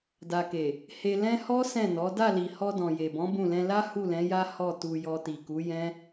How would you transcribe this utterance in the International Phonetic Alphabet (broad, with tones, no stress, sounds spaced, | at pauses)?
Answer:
d a˨ k e˨ | h e˧ l ɛ̃˦ h ɔ˦ s ɛ̃˦˨ n ɔ˨˦ d a˦˨ l i˨ h ɔ˧ d ɔ̃˨ j e˨ b ɔ̃˨˦ b ũ˦˨ l ɛ̃˧ l a˦ h u˦˨ l ɛ̃˨˦ j a˦ h ɔ˦˨ t u˧ j ɔ˧ t i˨ k u˨˦ j ɛ̃˦